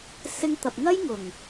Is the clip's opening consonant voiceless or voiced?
voiceless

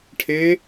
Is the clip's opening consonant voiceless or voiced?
voiceless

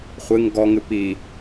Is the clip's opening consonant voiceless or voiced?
voiceless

